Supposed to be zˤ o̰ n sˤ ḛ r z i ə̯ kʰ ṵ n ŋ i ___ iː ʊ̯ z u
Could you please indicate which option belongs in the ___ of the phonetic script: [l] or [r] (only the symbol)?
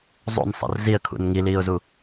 l